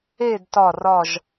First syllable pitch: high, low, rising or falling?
falling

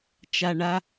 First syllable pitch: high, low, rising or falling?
low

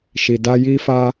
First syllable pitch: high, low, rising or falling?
low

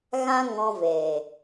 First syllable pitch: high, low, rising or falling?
high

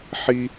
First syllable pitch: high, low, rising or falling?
high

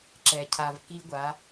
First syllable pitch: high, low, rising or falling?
low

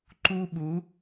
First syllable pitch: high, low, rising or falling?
high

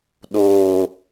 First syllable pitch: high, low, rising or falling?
low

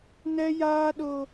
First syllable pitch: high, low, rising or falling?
high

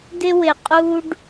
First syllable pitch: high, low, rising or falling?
high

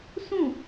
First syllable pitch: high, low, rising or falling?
falling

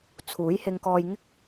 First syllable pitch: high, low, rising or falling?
rising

